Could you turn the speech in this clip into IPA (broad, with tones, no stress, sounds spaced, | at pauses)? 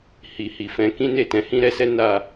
h i˧ h i˨ f ɛ̃˧ k ĩ˦ n e˦˨ t ɛ̃˨˦ h ĩ˦ ɾ ɛ˦ s ɛ˦ n a˦˨